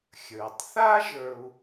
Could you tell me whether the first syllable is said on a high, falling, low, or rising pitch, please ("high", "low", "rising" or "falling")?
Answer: low